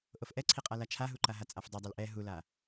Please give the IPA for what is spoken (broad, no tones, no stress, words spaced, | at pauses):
ʔofʔɛǀʰiqʼa lat͡ʃʰaɦuǃa ɦat͡sʼafdˤɛdˤɛl ʔɛ ɦula